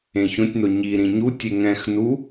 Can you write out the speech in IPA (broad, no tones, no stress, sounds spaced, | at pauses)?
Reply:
ẽ ç õ tʲ n o ɲ i ɾ ĩ ɲ u tʲ e ŋ ɛ̃ x n u